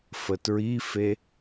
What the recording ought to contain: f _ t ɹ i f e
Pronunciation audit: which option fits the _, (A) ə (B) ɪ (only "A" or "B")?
A